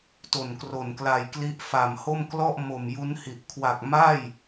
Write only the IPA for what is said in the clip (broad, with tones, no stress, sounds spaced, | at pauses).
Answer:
t o˨˩ n k r o˨˩ n k l a˨˩ j k l i˦˥ ʔ f a˨˩ m h o˥˩ m k l ɔ˥˩ ʔ m o˨˩ m j u˦˥ n h i˨˩ ʔ kʰ w a˨˩ k̚ m a˥˩ j